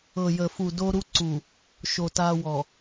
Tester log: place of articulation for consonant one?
palatal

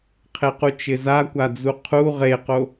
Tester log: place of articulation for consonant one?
uvular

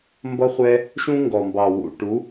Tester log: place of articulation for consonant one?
labial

